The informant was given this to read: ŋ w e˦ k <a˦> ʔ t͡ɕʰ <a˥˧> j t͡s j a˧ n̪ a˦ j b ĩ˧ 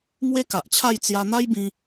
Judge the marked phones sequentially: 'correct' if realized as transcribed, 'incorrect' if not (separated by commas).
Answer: incorrect, correct